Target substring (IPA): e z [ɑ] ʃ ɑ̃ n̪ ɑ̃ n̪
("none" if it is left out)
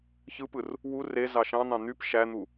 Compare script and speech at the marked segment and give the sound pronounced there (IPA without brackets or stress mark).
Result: ɑ